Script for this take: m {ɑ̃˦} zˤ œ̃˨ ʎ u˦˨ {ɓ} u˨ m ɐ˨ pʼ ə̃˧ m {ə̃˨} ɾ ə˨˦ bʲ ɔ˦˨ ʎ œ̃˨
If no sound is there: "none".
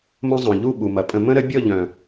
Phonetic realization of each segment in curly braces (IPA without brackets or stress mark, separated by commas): ə̃˦, ɓ, ə̃˦